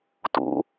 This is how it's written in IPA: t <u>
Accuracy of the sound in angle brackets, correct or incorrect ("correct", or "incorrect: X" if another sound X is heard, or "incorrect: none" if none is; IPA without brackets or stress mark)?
incorrect: ṵ